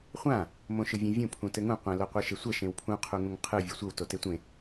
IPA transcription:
χʷ ã | m õ ʃ ɯ vʲ ẽ vʲ ũ pʰ ũ t ɘ ŋ ũ qʷ ɛ̃ l o qʷ ɯ ʃ e sʷ ɛ ʃ ẽ w pʰ ũ qʰ u ŋ ũ ŋ qʰ ɯ vʲ u sʷ ɘ w t o t e tʷ ẽ

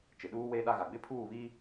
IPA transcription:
t͡ʃ ɪ˨ ɗ uː˦ w eː˦ ɗ a˦ ɣ a˨ ɡ͡b ɪ˦ pʰ uː˦˨ β i˦

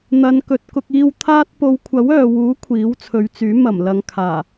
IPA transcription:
n̪ ɐ˨˧ n k ɵ˨ t̚ k ʊ˧ k̚ iː˧ w t̪ʰ aː˥ t̚ p o˨˧ w kʷʰ ɐ˨˥ w œː˨ w uː˨˥ kʷʰ iː˨˥ w t͡sʰ ɵ˨˧ ɥ t͡s yː˨˥ m ɐ˨˩ m l ɐ˨ ŋ kʰ aː˨˩

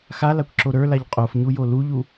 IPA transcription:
x a l a kʷ ǁ o ɾ ə˞ l a ʎ qʼ o f ɲ u j o l u ʎ u

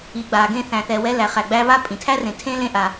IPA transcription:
i˨ ɡ͡b a˨ ɡ ẽ˧ θ æ̃˨ θ ɛ˨ w ɛ˧ l æ˨ χ æ˨ ɡ͡b æ˧ β a˦ pʼ ĩ˨ tʰ æ˦ r ẽ˨ tʰ ẽ˦ l ẽ˦ ʔ a˨

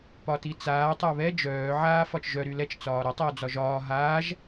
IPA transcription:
p ɒ t i t͡s aː tˤ œ β ɛ d͡ʒ œː ʕ aː f ɒ t͡ʃ ʒ œ ɾ y l ɛ t͡ʃ t͡s ɒː ɾ ɒ tˤ ɛ w d͡z ɒ ʒ ɒː ɦ aː ʒ

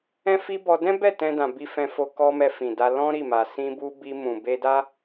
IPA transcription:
ɛ̃˦ f i˦ b ɔ˧ d ɛ̃˦ b ɛ˦˨ t ɛ̃˧ d ã˨ b i˧ f ɛ̃˧ f o˧ k ɔ˦ m ɛ˧ f ĩ˨ d a˧ l ɔ̃˦ ɾ i˦˨ m a˨ s ĩ˧ b u˧ b i˧ m ũ˨ b e˧ d a˦

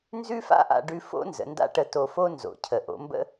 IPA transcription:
n z ʉ˥ f a̰˥ ʔ a̰˧ ɖ ʉ˧ f o̰˥ n z ə̰˩˧ n d a̰˥ ʈ ə˧ t o˧ f o˥ n z o̰˩˧ cʰ ə˩ ʔ o̰˩˧ m b ə̰˥

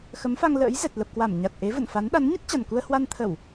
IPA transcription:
x ə˨˦ m f a˧ ŋ l ə̰ː˧˥ j z ɛ˨˩ t̚ l ə˨˩ p̚ k w a˧˩ m ɲ a˨˩ t̚ ʔ e˨˦ v ə̰˧˨ n f a˨˦ n ɗ a˨˦ n ɲ ə˦˥ t̚ t͡ɕ a˨˩ n k u˧ ə̯ h w a˧ n t̪ʰ ə˧˩˨ w

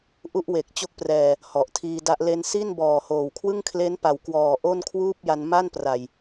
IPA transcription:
ʔ u˥˩ ʔ w e˨˩ k̚ t͡ɕ o˦˥ k̚ p r ɛː˨˩ | h ɔ˨˩ ʔ tʰ iː˧ d a˦˥ ʔ l e˧ n s i˥˩ n b ɔː˨˩ h oː˨˩ w kʰ w ɯ˥˩ ŋ kʰ l e˦˥ n p a˩˦ w k w ɔː˨˩ ʔ o˥˩ n kʰ w uː˥˩ p̚ j a˧ n m a˥˩ n p r a˨˩ j

